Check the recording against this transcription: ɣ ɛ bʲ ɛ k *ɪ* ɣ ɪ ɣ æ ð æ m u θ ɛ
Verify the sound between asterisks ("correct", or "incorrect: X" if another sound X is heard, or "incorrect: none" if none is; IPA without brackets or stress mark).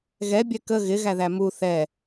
incorrect: ə